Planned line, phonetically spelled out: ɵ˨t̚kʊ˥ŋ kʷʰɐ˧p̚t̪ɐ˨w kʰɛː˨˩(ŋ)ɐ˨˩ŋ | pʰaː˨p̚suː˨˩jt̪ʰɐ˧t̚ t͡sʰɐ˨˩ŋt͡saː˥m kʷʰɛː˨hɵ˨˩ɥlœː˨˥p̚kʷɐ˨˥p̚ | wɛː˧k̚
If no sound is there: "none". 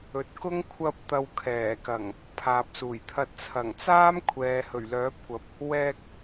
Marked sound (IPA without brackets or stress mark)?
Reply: k